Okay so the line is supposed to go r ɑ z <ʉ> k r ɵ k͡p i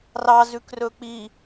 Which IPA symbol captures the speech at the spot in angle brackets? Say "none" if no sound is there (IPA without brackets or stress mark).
ʉ